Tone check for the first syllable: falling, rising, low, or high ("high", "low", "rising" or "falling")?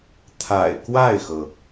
low